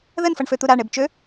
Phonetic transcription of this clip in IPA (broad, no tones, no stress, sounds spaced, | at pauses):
ð ə n f ʌ ɳ f ø t̪ u ɾ a ɳ e b t͡ʃ ø